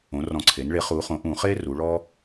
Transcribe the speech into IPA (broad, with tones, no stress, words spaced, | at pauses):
õ˩˧rɔ̃˨˩ǀʰe˩˧nɭe˩˥ χu˩˧χõ˩˧ʔ ũ˧˩˧χe˦ ru˩˧ɭɔ˦